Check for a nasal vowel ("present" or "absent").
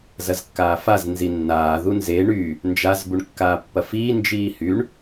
absent